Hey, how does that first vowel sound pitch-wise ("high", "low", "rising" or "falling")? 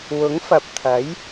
rising